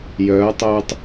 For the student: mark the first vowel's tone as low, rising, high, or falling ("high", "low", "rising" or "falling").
rising